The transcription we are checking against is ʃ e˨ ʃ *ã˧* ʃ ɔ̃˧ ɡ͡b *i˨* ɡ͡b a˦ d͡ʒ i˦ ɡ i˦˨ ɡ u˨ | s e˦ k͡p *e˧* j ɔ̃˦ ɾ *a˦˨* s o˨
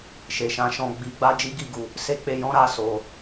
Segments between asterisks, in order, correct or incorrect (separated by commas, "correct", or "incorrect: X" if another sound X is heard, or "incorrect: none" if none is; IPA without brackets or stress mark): incorrect: ã˨˦, incorrect: i˧, correct, correct